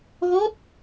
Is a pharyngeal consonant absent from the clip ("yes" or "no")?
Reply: yes